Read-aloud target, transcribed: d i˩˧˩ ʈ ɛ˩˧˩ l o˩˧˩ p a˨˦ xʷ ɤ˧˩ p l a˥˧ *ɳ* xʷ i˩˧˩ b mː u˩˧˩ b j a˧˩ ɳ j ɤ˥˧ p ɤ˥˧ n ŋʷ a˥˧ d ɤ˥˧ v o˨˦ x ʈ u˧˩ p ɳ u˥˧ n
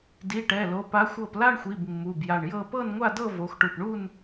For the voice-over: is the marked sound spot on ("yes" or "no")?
yes